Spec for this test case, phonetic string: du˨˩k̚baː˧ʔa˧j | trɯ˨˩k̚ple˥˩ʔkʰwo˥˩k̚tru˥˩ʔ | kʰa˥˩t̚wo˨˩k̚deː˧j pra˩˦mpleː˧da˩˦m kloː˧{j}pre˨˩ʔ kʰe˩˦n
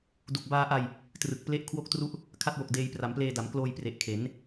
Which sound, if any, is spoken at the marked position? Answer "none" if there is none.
j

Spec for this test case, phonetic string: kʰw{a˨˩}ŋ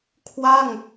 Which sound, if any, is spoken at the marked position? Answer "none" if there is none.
a˥˩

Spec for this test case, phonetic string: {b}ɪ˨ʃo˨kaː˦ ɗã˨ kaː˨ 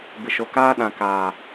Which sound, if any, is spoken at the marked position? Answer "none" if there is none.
b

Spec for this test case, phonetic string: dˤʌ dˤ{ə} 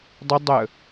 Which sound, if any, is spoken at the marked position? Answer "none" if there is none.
ə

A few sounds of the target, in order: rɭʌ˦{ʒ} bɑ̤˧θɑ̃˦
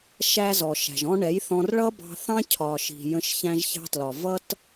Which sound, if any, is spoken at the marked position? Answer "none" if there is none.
none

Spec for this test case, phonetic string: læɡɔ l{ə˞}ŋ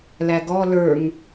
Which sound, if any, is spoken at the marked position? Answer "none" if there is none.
ə˞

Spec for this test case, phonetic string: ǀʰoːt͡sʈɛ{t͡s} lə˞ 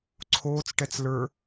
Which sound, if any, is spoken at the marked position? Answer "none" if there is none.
t͡s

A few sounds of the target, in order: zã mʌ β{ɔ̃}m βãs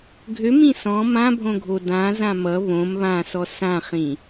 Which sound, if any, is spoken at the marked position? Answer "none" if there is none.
õ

